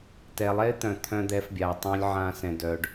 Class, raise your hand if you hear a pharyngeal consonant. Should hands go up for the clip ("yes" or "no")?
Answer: yes